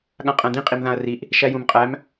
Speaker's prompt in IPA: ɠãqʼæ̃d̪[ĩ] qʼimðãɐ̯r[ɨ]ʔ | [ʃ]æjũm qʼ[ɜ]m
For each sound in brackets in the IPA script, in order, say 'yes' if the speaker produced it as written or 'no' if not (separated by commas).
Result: yes, no, yes, no